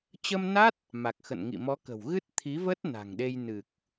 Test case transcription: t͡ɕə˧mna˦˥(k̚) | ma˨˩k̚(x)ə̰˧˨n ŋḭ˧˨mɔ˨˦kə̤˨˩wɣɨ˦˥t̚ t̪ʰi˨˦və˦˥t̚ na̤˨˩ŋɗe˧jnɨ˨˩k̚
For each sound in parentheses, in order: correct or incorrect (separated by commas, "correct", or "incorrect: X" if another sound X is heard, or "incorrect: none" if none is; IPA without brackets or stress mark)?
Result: incorrect: t̚, correct